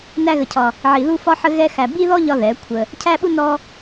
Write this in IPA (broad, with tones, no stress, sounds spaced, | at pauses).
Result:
n æ˦ ɣ ə˧ cʰ ɒ˧ | ʕ i˧ ð u˦ f ɒ˦ ħ ə˦ ɣ ɛ˦ x æ˧ b i˦ ð ɔ˦ ʎ ɒ˦ ð ɛ˨˦ kʷʰ ə˧ | cʰ æ˦ ɓ u˦ n ɔ˦